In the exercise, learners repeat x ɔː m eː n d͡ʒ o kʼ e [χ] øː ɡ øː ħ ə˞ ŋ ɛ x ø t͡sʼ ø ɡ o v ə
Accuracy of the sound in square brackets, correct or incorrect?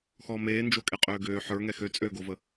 incorrect